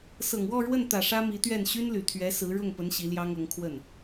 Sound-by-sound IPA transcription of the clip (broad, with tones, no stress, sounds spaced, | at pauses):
s ɤ˨˩ ŋ w ɔ˥˧ ɻ w ə˥˩ n t̪ ä˨˩ ʂ ä˥ m i˧˥ t̪ ɥ ɛ˥˩ n ɕ y˥ n l y˨˩ t̪ʰ ɥ ɛ˧˥ s ɹ̩˧˥ ɻ ʊ˥˩ ŋ p ə˧˥ n ɕ i˧˥ l j ɑ˥ ŋ ɤ˧˥ ŋ kʰ w ə˥˩ n